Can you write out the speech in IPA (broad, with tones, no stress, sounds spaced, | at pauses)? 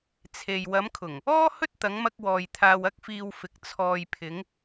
t͡sʰ e˨ j w ɐ˨˧ m kʰ ʊ˨˩ ŋ | ɔː˥ h ɵ˥ t̚ t̪ ɐ˨˧ ŋ m ɐ˧ k̚ w ɔː˨ j t̪ʰ aː˧ w ɐ˥ k̚ f iː˧ w f ɪ˨˥ k̚ t͡sʰ ɔː˨ j pʰ ɪ˨˧ ŋ